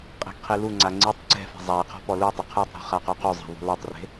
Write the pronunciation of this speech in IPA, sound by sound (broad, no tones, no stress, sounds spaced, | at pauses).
qʼ e̤ ɡ qʰ i l u ŋ͡ǀ a ŋ͡ǀ i tˤ ǀ ɛ̤ f e̤ zˤ a i̯ qʰ ɔ̤ p ɔ l u tˤ ɪ qʰ u tˤ ɾ ṳ χ a q u q u zˤ ɛ̤ ðˤ ṳ l ɛ tˤ r e̤